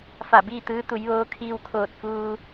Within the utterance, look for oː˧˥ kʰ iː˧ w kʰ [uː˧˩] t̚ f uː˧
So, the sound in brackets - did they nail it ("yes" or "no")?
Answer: no